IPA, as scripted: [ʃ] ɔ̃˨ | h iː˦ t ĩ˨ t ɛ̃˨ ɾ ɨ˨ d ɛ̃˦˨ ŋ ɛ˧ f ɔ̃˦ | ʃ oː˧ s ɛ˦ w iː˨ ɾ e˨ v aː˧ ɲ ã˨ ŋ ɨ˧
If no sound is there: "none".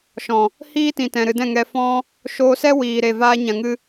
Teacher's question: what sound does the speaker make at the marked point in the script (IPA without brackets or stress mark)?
ʃ